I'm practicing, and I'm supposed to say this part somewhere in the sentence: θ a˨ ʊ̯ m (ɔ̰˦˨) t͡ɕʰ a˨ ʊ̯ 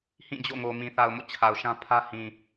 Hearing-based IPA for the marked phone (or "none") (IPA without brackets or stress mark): o̰˦˨